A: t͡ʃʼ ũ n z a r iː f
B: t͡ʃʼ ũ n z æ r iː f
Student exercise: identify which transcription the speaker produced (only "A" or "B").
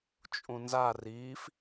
A